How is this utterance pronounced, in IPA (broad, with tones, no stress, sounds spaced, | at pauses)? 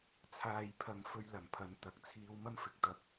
t͡sʰ aː˨ j pʰ ɐ˨ ŋ f ɵ˧ ɥ l ɐ˨˩ m pʰ ɐ˨˧ n t̪ ɐ˨ k̚ t͡sʰ iː˧ w m ɐ˥ m f ɪ˨˥ k̚ t̪ ɐ˧ p̚